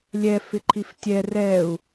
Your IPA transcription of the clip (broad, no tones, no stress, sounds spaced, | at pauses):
lʲ ɛ f ɪ ǃʰ i f tʲ ɛ r ɛ u̯